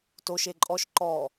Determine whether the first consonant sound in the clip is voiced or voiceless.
voiceless